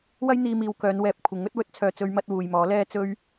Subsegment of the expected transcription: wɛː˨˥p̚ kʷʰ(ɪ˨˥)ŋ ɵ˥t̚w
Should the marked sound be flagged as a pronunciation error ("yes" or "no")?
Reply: no